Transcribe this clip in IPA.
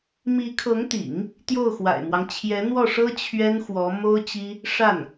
mi˧˥kʰɤ˧˥ŋt̪ḭ˨˩˦ŋ | t̪jo˥˩ʊ̯xwa̰˨˩ɪ̯mwɑ˦ŋ t͡ɕʰjɛ˧˥n̪wɔ˥˩ʂɤ˥ t͡ɕʰɥɛ˥nxwɔ˧˥ mo˥ʊ̯t͡ɕi˥ | ʂa˥˩n

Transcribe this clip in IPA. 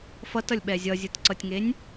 fʌtʌlʲɓɛ zʲʌzʲɯtǀʌtʲŋenʲ

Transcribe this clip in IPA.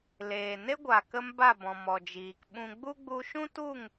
leː˨ ne˦ɡʷa˨kə˧m ba˦˨bɔ̃˨ mɔ˨d͡ʒiː˨k ɓũ˧ ɡ͡bu˦ɡ͡bu˧ ʃũ˦tu˦˨ŋ

